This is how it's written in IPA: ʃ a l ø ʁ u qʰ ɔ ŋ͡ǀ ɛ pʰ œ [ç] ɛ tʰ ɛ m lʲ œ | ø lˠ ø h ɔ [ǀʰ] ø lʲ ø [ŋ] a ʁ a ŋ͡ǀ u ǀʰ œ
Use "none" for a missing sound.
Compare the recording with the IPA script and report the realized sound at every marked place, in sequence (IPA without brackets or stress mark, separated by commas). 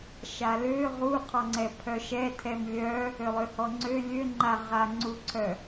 ʃ, ŋ͡ǀ, ŋ͡ǃ